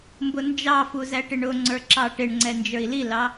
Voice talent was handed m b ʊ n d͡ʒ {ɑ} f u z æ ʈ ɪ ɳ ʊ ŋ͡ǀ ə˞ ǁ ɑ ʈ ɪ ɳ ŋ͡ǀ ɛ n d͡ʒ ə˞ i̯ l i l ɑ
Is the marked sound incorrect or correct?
correct